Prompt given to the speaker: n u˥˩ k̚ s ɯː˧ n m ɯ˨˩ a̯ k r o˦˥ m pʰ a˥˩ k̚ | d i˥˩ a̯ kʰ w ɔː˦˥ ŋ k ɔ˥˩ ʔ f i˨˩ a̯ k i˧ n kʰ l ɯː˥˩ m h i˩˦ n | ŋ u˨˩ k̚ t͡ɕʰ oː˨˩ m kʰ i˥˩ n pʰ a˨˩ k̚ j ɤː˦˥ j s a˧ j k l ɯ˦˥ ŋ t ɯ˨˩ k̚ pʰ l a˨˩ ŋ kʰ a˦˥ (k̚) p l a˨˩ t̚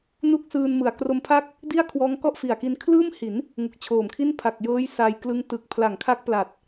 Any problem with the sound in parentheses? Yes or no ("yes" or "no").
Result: no